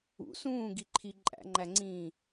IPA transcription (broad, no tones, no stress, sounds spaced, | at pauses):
ṵ s ũː ɡ i ǃʰ i ǃʼ æ̰ ŋ͡ǃ æ ŋ͡ǀ ĩː